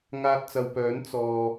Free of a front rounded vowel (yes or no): no